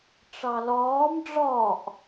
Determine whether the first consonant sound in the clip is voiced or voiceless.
voiceless